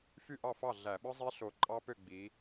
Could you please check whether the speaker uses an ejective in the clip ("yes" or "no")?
yes